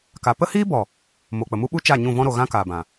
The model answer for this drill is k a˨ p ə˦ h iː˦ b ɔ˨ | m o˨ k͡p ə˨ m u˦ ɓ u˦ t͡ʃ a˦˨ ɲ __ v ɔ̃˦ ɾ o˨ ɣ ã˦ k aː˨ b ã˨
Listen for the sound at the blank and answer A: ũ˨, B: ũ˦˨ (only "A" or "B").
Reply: B